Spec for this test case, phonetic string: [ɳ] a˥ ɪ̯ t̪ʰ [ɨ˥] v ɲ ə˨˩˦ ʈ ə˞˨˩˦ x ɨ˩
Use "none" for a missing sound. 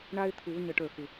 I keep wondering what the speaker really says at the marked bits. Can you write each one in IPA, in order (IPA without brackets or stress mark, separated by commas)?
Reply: ɳ, ɨ˨˩˦